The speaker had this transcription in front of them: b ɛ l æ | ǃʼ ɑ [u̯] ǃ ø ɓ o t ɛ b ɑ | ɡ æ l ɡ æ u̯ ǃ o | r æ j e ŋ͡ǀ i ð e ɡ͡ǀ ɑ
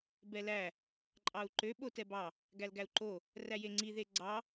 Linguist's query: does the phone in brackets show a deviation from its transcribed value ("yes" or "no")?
no